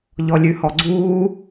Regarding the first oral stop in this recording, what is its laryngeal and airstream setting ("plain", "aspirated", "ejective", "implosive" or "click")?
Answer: click